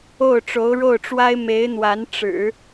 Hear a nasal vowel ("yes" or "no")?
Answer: no